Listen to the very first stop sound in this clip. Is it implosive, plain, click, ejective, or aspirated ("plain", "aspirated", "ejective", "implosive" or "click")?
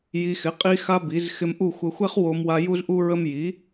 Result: ejective